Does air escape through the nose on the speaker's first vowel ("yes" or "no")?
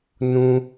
yes